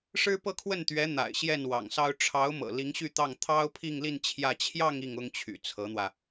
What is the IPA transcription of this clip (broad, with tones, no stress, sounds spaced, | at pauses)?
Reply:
ʂ ɻ̩˥ p ɤ˥˧ kʰ w ə˥˩ n t̪ ɥ ɛ˧˥ n̪ a̰˨˩ ɪ̯ ɕ j ɛ˥˩ n w ɑ̰˨˩ ŋ s ɑ˥ ʊ̯ ʈ͡ʂʰ ɑ˧˥ ʊ̯ m ɤ̰˨˩ l i˧˥ ŋ ɕ y˥˧ t̪ ɑ˥˩ ŋ t̪ʰ ɑ˥ ʊ̯ pʰ i˥˧ ŋ l i˥˧ n t͡ɕʰ j ä˥˧ t͡ɕʰ j ɑ˥˧ ŋ i˥˩ ŋ ʊ˥ ŋ t͡ɕʰ y̰˨˩ t͡sʰ ɤ˧˥ n̪ w ä˧